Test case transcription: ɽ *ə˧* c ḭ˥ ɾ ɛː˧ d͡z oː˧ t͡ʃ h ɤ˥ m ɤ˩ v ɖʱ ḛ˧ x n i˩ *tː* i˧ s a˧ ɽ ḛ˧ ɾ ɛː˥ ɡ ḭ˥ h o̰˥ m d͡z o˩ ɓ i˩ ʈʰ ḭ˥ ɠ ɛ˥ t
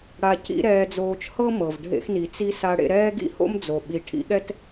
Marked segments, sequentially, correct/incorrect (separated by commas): incorrect, incorrect